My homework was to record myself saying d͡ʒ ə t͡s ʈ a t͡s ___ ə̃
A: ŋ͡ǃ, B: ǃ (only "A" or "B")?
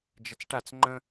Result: A